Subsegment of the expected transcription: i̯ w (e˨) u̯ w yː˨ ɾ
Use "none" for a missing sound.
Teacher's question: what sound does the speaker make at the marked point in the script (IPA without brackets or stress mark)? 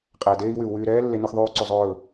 y˨